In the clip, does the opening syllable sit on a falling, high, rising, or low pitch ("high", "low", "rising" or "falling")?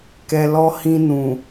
low